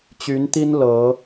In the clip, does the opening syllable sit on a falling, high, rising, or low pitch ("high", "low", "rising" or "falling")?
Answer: rising